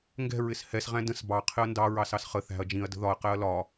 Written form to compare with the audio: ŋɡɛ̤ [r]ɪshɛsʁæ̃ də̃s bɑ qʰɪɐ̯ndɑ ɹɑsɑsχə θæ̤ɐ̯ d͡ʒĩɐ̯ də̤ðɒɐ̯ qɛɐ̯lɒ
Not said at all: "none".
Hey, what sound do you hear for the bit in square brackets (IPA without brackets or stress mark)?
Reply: ɹ